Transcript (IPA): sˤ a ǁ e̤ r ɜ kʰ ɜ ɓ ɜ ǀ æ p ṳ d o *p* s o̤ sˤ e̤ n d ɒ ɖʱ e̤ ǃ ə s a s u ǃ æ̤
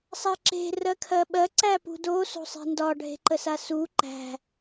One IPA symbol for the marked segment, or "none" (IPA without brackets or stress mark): none